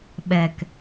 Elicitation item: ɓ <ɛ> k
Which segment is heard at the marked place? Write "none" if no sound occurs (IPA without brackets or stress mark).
ɛ